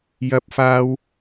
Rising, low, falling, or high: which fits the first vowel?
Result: high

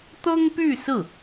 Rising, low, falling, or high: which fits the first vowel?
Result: high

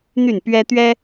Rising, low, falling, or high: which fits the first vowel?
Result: falling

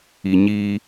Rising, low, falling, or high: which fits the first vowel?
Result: low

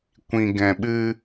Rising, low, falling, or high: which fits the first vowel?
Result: low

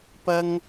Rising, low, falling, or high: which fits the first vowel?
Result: high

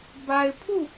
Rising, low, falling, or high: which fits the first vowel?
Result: low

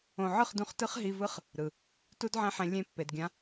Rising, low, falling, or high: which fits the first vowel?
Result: low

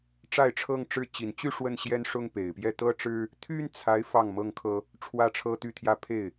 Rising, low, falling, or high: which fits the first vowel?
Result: falling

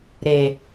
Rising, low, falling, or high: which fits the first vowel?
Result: low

